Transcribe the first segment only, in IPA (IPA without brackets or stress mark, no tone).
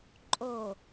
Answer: ǃʼ